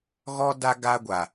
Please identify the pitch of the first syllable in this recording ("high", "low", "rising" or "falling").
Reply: high